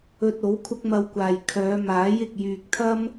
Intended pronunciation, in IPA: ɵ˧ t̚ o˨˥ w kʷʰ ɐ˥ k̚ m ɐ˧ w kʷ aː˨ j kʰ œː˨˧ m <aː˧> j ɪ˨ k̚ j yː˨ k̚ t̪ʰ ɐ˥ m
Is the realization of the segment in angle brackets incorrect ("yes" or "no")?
yes